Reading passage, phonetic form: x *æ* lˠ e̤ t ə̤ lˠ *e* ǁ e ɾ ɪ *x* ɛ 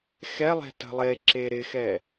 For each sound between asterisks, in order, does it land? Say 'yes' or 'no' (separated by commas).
no, yes, yes